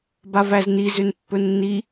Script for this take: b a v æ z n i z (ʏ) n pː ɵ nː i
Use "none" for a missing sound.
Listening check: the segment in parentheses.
ʏ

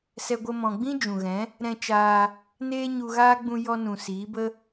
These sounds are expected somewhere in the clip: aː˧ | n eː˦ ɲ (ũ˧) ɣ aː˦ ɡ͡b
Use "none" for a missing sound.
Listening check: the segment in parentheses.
u˧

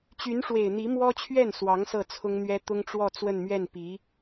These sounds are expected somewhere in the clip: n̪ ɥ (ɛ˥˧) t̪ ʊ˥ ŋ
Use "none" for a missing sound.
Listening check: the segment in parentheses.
ɛ˥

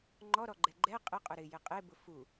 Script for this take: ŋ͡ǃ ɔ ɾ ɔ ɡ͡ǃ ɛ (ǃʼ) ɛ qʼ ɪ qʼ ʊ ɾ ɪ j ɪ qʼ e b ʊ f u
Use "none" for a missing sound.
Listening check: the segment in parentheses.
ɡ͡ǃ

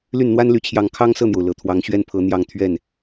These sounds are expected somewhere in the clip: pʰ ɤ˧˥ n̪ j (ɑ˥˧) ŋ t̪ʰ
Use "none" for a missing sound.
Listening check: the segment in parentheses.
ɑ˥˧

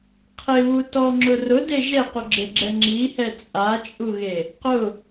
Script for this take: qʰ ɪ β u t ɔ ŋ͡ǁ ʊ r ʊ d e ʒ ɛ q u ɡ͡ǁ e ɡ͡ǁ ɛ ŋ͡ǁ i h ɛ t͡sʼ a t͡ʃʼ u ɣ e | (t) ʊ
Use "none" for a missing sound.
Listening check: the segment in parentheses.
q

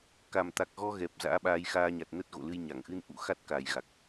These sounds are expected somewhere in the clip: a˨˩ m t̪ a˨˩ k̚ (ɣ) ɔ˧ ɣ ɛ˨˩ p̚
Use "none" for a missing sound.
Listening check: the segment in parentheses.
ɣ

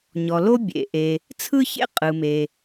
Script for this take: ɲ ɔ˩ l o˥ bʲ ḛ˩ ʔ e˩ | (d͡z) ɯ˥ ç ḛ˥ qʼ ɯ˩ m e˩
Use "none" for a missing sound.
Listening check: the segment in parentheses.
t͡sʰ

